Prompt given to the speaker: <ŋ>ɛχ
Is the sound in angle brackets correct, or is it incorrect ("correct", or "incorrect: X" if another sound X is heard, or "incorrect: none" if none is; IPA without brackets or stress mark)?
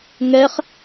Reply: correct